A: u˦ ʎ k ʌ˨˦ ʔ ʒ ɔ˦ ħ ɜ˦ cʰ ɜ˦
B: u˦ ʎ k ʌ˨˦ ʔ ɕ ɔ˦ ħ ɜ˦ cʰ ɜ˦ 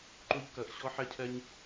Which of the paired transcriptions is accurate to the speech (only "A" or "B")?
B